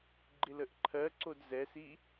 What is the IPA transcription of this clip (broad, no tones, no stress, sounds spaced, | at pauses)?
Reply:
ɡ͡ǃ ɪ l ə ʔ ǃʰ ɜ ǀ o d z ɛ s i